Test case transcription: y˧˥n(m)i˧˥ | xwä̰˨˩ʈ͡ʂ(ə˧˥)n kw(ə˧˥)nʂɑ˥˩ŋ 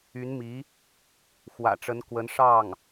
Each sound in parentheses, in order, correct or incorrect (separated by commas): correct, correct, correct